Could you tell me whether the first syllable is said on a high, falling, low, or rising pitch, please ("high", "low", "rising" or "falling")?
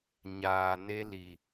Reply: low